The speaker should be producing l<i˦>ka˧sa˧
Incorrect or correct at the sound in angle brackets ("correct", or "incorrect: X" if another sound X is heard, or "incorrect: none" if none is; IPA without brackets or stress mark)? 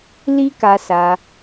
correct